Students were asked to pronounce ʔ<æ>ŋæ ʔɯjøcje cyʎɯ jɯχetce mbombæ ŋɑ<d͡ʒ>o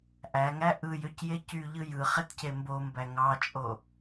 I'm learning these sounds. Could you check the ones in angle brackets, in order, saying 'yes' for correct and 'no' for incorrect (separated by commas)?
yes, no